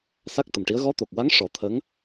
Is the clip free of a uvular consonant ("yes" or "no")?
yes